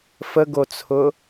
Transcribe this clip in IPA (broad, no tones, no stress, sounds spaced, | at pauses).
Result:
f ə ɡ o t͡sʰ ʊ